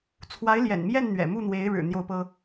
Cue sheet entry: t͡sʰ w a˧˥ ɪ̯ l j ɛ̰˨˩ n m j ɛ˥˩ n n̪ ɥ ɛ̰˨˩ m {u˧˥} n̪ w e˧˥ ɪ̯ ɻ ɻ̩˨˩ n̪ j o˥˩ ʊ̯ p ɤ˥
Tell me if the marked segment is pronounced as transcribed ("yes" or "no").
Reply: no